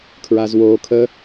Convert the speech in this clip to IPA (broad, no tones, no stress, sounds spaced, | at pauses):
kʰ ɹ aː z w oː kʰ ə